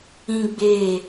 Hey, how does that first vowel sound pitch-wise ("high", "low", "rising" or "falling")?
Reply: high